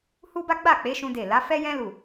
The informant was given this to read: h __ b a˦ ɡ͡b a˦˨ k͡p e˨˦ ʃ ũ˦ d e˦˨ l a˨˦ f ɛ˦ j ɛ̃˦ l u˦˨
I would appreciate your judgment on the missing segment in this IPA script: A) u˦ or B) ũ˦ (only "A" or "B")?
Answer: A